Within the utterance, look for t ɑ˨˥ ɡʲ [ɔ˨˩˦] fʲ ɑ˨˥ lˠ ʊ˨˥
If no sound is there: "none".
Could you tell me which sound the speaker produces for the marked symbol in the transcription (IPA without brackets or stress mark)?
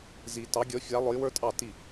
ɔ˨˥